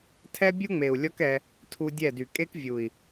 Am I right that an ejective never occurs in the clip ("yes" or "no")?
no